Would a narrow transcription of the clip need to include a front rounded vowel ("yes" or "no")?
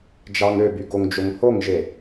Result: yes